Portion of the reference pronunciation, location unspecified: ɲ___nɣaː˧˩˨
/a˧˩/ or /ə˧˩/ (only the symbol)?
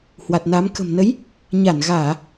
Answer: a˧˩